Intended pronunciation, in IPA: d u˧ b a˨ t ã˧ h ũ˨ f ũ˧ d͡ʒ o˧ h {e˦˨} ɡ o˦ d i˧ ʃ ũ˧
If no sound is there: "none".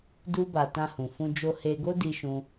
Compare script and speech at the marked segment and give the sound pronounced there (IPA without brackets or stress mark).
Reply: e˧